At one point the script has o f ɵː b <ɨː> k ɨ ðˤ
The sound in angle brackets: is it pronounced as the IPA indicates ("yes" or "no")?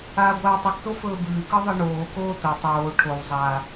yes